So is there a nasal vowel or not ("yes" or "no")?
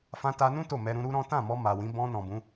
yes